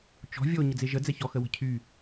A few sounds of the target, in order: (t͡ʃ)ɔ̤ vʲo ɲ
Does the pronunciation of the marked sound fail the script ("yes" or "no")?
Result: no